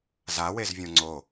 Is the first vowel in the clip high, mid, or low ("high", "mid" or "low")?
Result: low